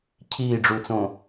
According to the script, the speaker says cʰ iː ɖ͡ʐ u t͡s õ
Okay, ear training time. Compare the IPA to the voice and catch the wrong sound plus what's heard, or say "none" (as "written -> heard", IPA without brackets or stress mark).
none